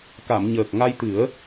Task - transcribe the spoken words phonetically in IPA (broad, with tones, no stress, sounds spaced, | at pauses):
k a˨˩˨ m ɲ əː˨˩ k̚ ŋ a˧ j t̪ ɨ˨˩˦ ə̯